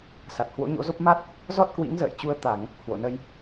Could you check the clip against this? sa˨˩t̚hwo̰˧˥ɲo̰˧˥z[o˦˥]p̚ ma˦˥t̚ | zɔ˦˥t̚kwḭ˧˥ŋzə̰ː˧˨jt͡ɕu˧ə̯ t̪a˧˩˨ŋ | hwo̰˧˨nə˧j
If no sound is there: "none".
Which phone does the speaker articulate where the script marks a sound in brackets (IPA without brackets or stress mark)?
o˦˥